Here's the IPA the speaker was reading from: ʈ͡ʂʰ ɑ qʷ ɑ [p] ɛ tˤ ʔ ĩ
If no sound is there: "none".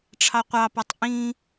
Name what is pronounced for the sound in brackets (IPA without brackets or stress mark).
p